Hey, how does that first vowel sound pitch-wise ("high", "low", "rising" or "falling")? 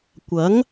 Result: rising